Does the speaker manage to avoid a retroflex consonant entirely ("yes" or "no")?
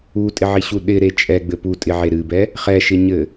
yes